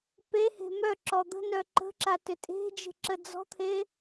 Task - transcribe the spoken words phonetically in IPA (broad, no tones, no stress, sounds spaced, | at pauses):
p e h e̤ m œ ǁ ɔ d̪ ə̤ n œ ǃ ə̤ ǁ a t ʏ tʼ e̤ d͡ʒ e̤ ǁ ə d͡z ɔ̤ t̪ʰ e